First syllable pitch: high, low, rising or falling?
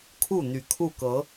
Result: falling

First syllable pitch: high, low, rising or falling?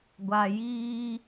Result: low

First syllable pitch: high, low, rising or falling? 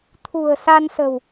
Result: low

